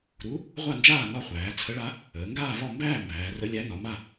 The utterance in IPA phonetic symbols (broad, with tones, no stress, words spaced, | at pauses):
ɾu˧˥ | ʁʷa˥˧nd͡ʒaː˥˧ nɒ˥˧χʷæː˩˧ t͡sʰə˧˥ɭa˧˥ | əː˩˧ŋɡaː˥˧vɒ˥˧ mbæː˥˧ mbæː˩˧rə˧˥lʲæ˧˥ nɒ˩˧ma˥˧